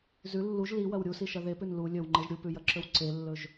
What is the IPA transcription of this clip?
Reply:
z ʉ lː u ʒ l i w ɐ w ɾʲ u s i ʃ ɐ ð e p ʉ n l u lʲ ɵ w ŋ͡ǃ e ʒ ɾʲ u p ʉ j ɐ ǁ ɵ w ǀ e lː ɵ ʒ

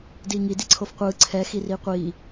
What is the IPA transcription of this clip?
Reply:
d iː ŋ i d i ǀʰ o f qʷ ɯː ǀʰ ɛ x i r iː qʷ iː

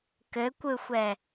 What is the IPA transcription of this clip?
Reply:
k ɘ kʷ ɯ xʷ ɛ

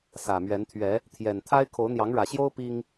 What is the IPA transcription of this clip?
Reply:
s ä˨˩ m ɥ ɛ˨˦ n t̪ʰ ɥ ɛ˨˦ | t̪ʰ j ɛ˨˩ n t̪ʰ a˦ ɪ̯ kʰ o˨˦ ʊ̯ n̪ j ɑ˨˦ ŋ ɻ ä˨˩ ɕ j o˦ ʊ̯ p i˦ ŋ

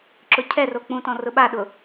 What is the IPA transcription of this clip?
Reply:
ǁ ʊ cʰ ɛ r o k͡p ũ t ɔ̃ r ʊ ɓ a ɗ ʊ

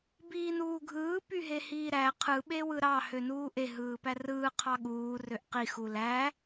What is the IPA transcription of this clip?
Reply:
b iː n uː ɡʱ ɯː p y ɦ e h iː ɾ æ qʰ ɯ ɓ e w ɯ ɾ ɑ h ø n uː ʔ e ɦ ɯː p æ r ɯː qʰ ɑ ɠ uː r ø ʔ q i x u l æ

